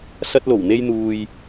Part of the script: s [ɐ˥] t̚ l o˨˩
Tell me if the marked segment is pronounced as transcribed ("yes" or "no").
no